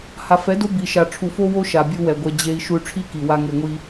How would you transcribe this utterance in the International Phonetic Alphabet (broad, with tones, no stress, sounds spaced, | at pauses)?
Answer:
h a˨ f ɛ˨˦ d o˦ b i˨ ʃ a˨ ʈ͡ʂʰ u˨ f o˦ w o˦ ʃ a˨ bʲ u˧ w ɛ˨ ɡʷ ɛ˧ d͡ʑ e˦ i̯ ʃ u˧ y̯ ʈ͡ʂʰ i˦ k i˨ w a˦ ŋ e˧ ŋʷ i˦